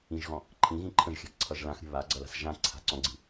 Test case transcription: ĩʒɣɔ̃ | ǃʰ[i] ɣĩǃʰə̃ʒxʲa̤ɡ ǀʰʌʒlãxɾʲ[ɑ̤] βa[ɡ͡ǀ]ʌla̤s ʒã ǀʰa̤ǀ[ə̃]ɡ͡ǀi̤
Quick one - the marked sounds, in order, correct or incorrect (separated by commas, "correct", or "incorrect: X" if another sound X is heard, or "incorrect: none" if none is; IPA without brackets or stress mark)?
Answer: incorrect: ĩ, incorrect: ə̤, correct, incorrect: ɔ̃